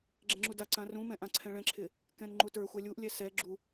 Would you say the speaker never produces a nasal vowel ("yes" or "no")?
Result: no